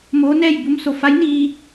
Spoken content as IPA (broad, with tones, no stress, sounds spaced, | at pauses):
m oː˧˥ n ɛː˥˨ j b u˧˥ m s o˧˩ f a˧˥ j n iː˧